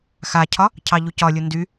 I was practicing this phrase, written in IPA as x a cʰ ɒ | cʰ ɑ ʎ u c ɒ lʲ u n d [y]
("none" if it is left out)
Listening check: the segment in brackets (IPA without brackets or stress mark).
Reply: y